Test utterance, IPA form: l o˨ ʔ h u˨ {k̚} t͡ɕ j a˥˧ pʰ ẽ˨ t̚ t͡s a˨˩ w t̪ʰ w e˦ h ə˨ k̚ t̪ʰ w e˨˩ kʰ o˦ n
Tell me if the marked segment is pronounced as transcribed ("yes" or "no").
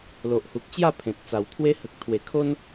yes